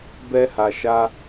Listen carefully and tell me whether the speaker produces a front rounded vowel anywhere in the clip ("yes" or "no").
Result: no